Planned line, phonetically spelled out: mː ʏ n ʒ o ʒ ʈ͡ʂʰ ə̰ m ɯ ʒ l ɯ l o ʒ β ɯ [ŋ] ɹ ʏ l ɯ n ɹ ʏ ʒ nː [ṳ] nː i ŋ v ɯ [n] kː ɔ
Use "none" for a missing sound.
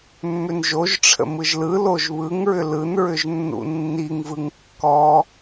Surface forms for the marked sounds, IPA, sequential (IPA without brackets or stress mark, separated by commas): ŋ, ṵ, ŋ